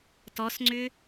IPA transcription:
t ɔ s ŋ͡ǀ ʏ

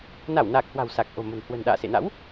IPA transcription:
n a˧˩ w n aː˨˩ k̚ h w a̤˨˩ w s a˨˩ k̚ ʔ o̤˨˩ m ə̤˨˩ n h w ə̤˨˩ n ɗ a̰ː˧˨ s ḛ˧˨ n a̰˧˥ w

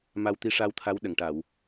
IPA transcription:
m a˧ w t̪ i˧ ʂ a˧ w t̪ʰ a˧˥ w ɗ ə˨˩˨ ŋ ʈ a˨˩˨ w

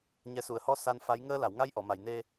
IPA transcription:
ɲ ɛ˨˩˦ s u˨˩˨ ə̯ h ɔ˧ s a˧ n f a˧˥ j ŋ əː˧ l a˨˩˨ w ŋ a˧ j ʔ ɔ˨˩˨ m a˨˩˨ j n e˧

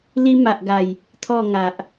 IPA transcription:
l i˧ m a˨ ʔ ɡ a˨˩ j | t̪ʰ ɔ˥˧ ŋ a˨ ʔ

